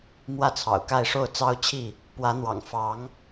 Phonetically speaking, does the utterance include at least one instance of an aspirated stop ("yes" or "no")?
yes